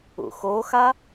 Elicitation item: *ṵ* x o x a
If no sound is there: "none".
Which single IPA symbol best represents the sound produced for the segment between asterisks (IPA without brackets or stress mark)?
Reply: ṵ